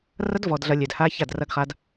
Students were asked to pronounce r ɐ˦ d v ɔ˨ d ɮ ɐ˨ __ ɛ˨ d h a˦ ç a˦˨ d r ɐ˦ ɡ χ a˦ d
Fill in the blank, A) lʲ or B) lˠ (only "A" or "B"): A